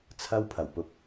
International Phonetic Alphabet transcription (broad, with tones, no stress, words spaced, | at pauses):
t͡sʰɐ˥wpʰɐ˨˩wpʊ˨k̚